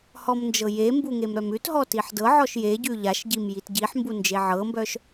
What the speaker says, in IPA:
h ɔ m n d͡ʒ ɤ j e m b u ŋ e m ɾ œ m ʉ t ɦ ɔ t i ħ d ɤ ʕ ɔ ʃ j e ɟ ʉ ʎ a ʃ ɟ i m j i t ɟ i ħ m b u n d͡ʒ e ʕ ɤ m b œ ʃ

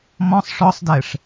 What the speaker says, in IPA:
m ɔ̃ sˤ ʂ ɔ sˤ d ɛ ʂ

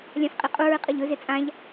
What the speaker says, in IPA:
lʲ ã f qʼ i qʼ u ɹ ɨ qʼ ɐ ʎ ɵ z e t͡sʼ ã ʎ

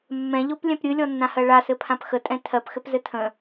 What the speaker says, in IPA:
mː ɛ̃ ʎ o p lʲ ɛ̃ p ɾʲ ɨ lʲ ɔ nː ã h ɜ ɭ a s ɘ pʰ ã p x ə tʼ ɛ̃ tʰ ɜ p x ɘ p z ɘ tʰ ə̃

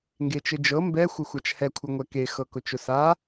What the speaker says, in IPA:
ŋ ɡ e t͡ʃ ɘ d͡ʒ ɤ m b ɛ xʷ ɘ xʷ a t͡ʃ h ɛ kʷʰ ɘ ŋʷ ɛ k e x ɤ k ʊ t͡ʃ ʊ s a

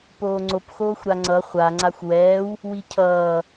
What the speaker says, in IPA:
p oː ŋ͡ǀ o p x oː xʷ ɾ a ŋ͡ǀ ʌ χʷ a ŋ͡ǀ a xʷ w ɛː w | w i cʰ ʌː

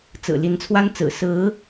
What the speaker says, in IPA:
t͡s ɹ̩˨˩ l i˧˥ n t͡sʰ w a˥ n t͡s ɹ̩˨˩ s ɹ̩˧˥

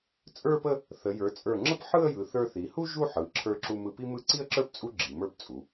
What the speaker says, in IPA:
t͡sʼ ə˞˥˧ p ə˥˧ | θ ə˩˧ j ə˞˩˧ t͡sʼ ə˞˧˩ ŋ͡ǁ ə˥ p ħ ɯ˥˧ ə̯ j ɯ˩˧ θ ə˞˧ θ i˩˧ h u˥ ʒ u˥˧ ħ ɯ˩˧ ǁʰ ə˞˧ ǁ u˧ m ɯ˧ p i˥ m ɯ˥˧ ǀ i˥˧ ə̯ ǁ ə˞˥˧ p t͡sʼ u˥ ɡ͡ǁ i˩˧ m ə˞˥˧ p t͡sʼ u˩˧

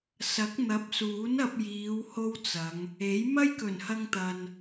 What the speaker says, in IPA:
s ɐ˨˥ k̚ n̪ ɐ˨˥ p̚ s uː˨˥ n ɐ˧ p̚ j iː˨˧ w h o˥ w t͡s ɐ˨˧ ŋ | e˨˥ j m ɐ˥ j k ɵ˨˩ n h ɐ˧ ŋ t̪ ɐ˨ n

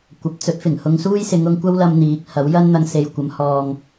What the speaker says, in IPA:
kʷ ɐ˨˥ p̚ t͡s ɵ˨˥ t̚ f ɪ˨˩ ŋ h ʊ˧ ŋ s uː˥ j s ɪ˨˧ ŋ ʊ˧ ŋ kʷ ɐ˥ w l ɐ˧ m n̪ iː˨˥ k̚ h ɐ˨˥ w j ɐ˥ n n̪ ɐ˧ ŋ s e˨ j kʷ ɐ˨˧ m h ɔː˨ ŋ

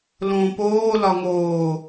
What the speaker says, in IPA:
l õː p oː l ɒ ŋ oː

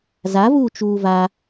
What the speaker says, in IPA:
z a v uː t͡ʃ uː v a

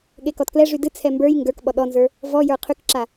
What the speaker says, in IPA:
ɠ e k ɔ t k l ɛ ʐ y d ɨ t͡sʰ ɛ m b ə˞ j ŋ ɡ ə˞ k ɓ ɔ ɗ ɔ n z ə˞ | v ɔ j ə˞ qʰ y k ǁ a

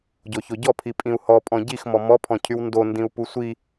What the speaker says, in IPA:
ɟ o ç o ɟ ɔ pʰ i pʼ ĩ u̯ h ɔ pʼ ɔ̃ ɟ i x m ɔ m ɔ pʰ ɔ̃ cʰ y w n d o n d ĩ u̯ p u sʷ i

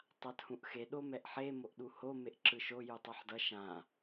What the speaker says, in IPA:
tˤ a t h ũ ʔ x e ɗ o m ɛ ʔ ħ e m o ʔ ɗ u h o m e ʔ ǁ ɯ ʃ o j u tˤ a ħ d ʌ ʃ ã

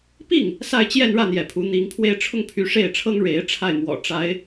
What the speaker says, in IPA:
p i˥˩ ŋ | s a˥˧ ɪ̯ t͡ɕ j ɛ˥˧ n ɻ ä˥˩ n̪ j ɛ˧˥ pʰ u˧˥ n̪ i˧˥ ŋ pʰ w e˥˧ ɪ̯ ʈ͡ʂʰ ʊ˥˩ ŋ pʰ y˧˥ ʂ e˥˩ ɪ̯ ʈ͡ʂʰ ɤ˥ ŋ ɻ e˧˥ ɪ̯ ʈ͡ʂʰ a˥˩ ɪ̯ m w ɔ̰˨˩ ʈ͡ʂ a˧˥ ɪ̯

